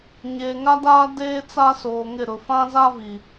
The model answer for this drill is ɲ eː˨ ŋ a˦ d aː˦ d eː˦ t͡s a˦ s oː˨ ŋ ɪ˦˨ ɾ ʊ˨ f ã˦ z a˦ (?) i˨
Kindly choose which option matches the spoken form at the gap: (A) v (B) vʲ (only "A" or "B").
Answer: A